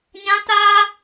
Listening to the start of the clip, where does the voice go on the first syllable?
high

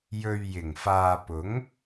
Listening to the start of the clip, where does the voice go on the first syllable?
low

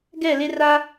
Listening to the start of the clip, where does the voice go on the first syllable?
falling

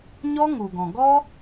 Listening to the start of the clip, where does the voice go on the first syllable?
high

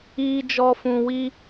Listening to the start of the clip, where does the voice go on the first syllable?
low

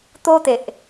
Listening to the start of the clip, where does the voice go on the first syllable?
high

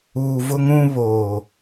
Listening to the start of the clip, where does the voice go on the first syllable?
low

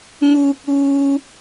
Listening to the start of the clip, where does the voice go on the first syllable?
high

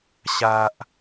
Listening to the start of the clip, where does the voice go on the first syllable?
low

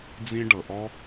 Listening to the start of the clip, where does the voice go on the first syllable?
high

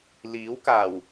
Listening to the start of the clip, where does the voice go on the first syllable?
rising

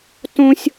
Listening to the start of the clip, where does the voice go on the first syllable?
high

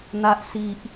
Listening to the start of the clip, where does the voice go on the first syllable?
low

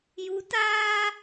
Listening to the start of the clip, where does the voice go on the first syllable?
rising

